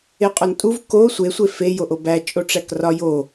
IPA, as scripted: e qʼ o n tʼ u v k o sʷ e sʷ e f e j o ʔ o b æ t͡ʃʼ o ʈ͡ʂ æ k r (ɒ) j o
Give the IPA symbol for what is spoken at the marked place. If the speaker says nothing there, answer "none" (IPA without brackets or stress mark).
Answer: ɒ